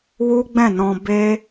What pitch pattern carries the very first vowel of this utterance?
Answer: high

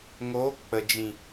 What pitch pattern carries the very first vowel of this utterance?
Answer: rising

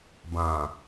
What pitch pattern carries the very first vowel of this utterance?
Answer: low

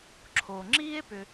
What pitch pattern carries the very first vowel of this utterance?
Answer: low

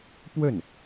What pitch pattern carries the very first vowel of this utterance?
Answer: falling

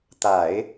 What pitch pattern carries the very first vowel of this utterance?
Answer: low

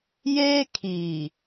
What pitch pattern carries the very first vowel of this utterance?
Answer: high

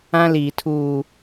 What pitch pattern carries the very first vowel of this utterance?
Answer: high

